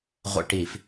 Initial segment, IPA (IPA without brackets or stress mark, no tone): ʁʷ